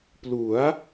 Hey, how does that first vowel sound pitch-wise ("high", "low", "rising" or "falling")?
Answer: rising